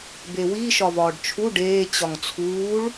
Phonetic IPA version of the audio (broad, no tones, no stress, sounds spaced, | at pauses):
b e w i ʃ ɒ v ɒː ɖ t͡ʃʰ u ɖ eː t͡ɕ ɒ ŋ t͡sʰ uː ɭ